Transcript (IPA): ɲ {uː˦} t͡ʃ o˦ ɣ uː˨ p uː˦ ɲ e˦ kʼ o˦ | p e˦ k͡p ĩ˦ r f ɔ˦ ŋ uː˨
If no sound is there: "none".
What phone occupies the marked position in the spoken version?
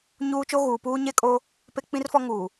uː˦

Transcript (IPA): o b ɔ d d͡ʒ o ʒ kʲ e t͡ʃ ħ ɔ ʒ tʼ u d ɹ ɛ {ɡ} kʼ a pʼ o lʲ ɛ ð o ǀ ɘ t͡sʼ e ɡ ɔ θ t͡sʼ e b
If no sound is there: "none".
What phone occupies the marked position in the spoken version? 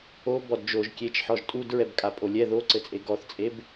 b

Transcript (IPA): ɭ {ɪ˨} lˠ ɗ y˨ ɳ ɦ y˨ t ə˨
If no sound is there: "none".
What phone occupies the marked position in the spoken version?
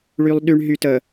y˨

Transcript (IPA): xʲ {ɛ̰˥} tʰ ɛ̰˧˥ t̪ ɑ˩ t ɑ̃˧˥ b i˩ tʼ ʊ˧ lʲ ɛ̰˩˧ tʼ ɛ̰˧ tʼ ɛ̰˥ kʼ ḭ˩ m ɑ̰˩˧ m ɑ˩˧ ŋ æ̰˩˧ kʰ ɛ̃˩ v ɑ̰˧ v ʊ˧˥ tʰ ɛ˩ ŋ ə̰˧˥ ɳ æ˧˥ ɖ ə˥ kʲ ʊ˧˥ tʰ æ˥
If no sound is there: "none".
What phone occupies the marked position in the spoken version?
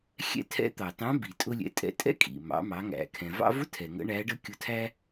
ɛ̰˥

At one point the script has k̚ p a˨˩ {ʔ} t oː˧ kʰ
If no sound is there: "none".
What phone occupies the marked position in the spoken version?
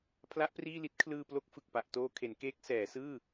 ʔ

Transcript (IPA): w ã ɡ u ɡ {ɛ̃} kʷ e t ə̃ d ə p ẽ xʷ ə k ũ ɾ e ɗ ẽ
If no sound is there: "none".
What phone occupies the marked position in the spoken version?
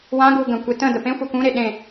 ə̃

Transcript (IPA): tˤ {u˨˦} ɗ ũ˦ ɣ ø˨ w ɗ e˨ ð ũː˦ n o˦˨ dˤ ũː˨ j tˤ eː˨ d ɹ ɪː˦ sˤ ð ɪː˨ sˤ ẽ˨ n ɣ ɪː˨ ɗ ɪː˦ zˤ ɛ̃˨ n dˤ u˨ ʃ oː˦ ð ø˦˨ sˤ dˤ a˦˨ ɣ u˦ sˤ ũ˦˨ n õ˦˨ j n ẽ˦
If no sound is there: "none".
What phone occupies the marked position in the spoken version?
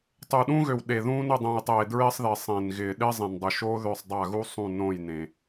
u˨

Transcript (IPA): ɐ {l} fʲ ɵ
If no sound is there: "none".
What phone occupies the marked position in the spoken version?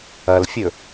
l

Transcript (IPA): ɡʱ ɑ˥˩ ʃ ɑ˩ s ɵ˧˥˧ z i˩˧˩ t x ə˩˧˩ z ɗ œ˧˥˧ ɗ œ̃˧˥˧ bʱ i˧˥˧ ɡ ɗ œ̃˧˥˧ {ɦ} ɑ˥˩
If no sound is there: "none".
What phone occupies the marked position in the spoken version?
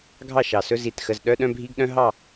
ɦ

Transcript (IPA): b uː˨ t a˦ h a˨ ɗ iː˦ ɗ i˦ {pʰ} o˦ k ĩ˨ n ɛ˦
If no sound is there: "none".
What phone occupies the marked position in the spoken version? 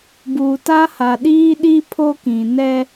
pʰ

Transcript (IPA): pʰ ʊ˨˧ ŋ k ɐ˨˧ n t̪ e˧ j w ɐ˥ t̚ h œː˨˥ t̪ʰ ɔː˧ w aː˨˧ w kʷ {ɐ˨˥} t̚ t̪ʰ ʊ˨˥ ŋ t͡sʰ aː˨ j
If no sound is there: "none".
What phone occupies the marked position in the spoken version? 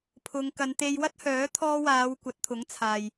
ɐ˨˥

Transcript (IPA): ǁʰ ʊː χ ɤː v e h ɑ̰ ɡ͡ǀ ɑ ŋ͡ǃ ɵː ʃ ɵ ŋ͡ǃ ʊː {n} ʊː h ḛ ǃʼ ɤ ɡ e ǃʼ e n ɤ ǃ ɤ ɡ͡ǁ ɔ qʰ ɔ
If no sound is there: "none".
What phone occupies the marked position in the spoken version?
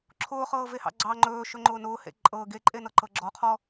n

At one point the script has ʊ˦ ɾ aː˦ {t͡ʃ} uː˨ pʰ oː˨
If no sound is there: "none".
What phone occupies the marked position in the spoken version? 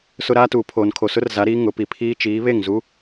t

